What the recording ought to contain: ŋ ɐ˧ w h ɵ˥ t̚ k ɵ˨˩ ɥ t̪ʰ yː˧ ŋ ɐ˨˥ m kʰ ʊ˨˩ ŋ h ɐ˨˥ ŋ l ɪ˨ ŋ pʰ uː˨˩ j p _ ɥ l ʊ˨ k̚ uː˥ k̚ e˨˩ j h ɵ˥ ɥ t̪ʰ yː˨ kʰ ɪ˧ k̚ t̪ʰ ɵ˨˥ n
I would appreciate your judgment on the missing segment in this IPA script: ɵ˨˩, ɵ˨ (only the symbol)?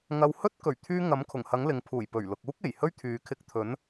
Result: ɵ˨˩